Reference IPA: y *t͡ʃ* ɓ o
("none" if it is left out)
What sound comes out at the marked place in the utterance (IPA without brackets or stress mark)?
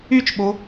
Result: t͡ʃ